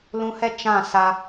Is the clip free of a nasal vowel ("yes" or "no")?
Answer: no